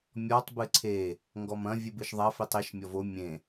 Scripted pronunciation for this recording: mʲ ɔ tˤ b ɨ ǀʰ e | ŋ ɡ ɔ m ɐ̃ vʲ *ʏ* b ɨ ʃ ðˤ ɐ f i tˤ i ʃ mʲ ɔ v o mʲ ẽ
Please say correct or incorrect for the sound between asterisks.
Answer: incorrect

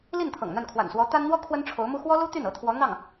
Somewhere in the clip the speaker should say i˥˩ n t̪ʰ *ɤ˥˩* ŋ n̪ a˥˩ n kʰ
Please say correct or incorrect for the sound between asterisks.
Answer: incorrect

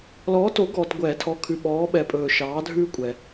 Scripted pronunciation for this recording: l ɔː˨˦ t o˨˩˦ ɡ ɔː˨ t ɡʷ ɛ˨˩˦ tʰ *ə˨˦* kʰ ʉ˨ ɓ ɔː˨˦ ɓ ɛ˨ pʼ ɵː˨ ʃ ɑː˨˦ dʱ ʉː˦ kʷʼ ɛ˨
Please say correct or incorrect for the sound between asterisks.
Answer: incorrect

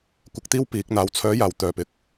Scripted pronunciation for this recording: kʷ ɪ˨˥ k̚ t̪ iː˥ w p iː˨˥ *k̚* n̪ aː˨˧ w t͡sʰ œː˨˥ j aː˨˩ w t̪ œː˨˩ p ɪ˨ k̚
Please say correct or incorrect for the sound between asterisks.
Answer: correct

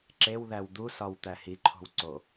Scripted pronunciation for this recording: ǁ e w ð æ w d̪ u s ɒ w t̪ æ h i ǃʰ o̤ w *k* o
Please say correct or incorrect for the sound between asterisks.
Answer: incorrect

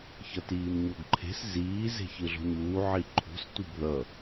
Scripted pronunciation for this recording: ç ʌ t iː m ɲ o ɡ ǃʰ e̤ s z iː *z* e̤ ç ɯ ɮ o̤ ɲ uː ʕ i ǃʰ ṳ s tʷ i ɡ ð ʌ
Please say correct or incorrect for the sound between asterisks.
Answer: correct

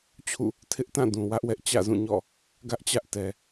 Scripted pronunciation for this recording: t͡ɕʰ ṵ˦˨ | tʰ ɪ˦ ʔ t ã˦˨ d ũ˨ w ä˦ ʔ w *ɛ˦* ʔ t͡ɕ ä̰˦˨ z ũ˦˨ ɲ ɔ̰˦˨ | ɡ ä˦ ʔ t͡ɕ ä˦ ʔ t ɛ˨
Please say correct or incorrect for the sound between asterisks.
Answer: correct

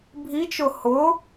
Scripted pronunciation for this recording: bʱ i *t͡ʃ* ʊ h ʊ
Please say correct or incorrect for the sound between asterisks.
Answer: correct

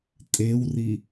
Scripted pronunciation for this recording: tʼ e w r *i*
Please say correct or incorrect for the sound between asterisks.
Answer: correct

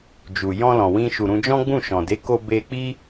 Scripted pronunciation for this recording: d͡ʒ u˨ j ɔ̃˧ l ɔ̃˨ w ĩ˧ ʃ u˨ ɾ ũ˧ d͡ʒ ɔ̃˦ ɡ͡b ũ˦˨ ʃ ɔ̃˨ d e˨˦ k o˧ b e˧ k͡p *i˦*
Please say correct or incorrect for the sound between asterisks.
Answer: correct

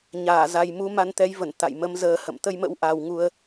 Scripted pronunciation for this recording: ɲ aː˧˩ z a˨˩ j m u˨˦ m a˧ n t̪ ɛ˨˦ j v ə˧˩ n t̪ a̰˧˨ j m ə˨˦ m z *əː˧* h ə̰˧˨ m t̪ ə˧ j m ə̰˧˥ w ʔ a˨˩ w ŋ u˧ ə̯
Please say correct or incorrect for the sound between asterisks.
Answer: correct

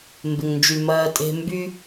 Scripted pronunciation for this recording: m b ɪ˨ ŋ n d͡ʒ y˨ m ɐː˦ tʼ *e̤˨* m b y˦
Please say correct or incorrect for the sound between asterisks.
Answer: incorrect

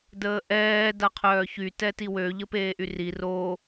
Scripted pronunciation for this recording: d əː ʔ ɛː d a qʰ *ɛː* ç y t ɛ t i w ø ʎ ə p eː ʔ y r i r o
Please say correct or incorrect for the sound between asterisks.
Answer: incorrect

